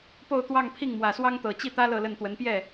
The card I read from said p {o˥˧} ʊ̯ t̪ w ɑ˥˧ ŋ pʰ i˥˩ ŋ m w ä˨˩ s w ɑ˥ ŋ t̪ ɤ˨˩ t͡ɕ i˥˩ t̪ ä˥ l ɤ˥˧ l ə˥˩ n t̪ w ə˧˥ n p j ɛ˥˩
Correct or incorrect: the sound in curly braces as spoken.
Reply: correct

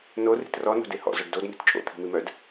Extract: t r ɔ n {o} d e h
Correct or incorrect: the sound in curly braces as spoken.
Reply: incorrect: o̤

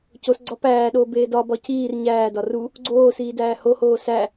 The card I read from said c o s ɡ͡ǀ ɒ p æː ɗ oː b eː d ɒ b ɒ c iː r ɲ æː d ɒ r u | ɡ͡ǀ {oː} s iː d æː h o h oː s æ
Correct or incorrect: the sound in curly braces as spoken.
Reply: correct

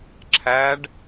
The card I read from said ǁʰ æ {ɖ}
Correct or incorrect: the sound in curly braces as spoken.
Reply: correct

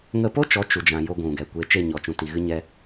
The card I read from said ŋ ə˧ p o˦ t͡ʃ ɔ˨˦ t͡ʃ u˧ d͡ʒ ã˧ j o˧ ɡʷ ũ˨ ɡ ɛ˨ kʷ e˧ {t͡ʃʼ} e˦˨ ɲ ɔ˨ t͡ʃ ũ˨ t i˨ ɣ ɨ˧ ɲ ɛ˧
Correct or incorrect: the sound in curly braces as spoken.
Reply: incorrect: t͡ʃ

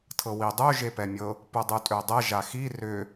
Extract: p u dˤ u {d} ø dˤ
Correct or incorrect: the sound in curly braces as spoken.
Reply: incorrect: tʼ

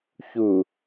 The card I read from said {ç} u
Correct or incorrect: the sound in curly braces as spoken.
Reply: correct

